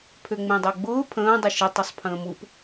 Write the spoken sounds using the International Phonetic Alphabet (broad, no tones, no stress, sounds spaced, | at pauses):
pʰ ø ŋ͡m ẽ dˤ ɤ ɡ͡b ʊː pʰ ə̃ː dˤ ʊ ʃ ə tˤ o sˤ pʰ ə̃ː m u p